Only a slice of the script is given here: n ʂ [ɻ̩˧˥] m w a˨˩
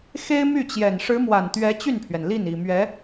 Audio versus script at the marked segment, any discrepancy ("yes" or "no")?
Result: no